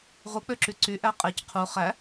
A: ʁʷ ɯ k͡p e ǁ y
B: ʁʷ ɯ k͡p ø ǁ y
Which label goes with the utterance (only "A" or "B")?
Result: B